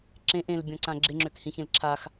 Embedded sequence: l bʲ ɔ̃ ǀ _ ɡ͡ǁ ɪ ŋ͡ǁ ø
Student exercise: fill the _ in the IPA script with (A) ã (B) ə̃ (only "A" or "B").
A